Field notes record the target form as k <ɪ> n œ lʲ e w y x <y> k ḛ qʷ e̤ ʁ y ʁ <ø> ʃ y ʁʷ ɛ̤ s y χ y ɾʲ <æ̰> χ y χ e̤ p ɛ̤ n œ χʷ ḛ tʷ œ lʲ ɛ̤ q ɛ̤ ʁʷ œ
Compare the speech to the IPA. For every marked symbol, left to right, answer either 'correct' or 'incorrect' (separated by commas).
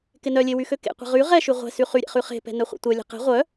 correct, incorrect, incorrect, incorrect